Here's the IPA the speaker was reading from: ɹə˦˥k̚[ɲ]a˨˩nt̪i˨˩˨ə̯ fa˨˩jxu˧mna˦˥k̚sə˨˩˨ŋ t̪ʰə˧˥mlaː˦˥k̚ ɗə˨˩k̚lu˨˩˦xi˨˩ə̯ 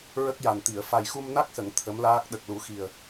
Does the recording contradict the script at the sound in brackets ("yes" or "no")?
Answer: yes